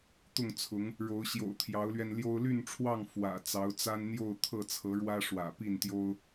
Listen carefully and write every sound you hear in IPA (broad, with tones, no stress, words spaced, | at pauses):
t̪ʊ˥˨ŋt͡sʰʊ˨˦ŋ | ɻo˨˦ʊ̯ɕjo̰˨˩ʊ̯ t̪ʰjɑ˨˦ʊ̯lɥɛ˧nljo˦ʊ̯ ly˥˨nʈ͡ʂʰwɑ˥˨ŋ fwä̰˨˩ t͡sɑ˨˦ʊ̯t͡sa˦nn̪jo˥˨ʊ̯ t̪ʰɤ˥˨t͡sʰɤ˨˦ɻwä˦ ʂwä̰˨˩ pi˥˨nt̪jo˦ʊ̯